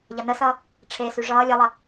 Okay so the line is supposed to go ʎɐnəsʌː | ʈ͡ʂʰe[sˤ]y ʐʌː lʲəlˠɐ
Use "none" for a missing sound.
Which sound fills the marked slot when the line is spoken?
s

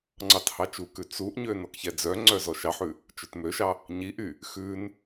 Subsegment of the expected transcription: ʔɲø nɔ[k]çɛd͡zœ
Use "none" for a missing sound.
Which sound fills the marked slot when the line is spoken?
k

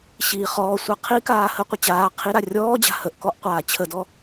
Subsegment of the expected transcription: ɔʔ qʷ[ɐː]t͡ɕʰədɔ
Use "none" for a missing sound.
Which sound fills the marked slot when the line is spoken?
aː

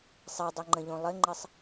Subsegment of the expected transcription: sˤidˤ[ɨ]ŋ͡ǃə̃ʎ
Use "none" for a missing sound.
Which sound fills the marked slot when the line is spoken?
ɛ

